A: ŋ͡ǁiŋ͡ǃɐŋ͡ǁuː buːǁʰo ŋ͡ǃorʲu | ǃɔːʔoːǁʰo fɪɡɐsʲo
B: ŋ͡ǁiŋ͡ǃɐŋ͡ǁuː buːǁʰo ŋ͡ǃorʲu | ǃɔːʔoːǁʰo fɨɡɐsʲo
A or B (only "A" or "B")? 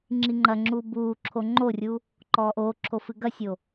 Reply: B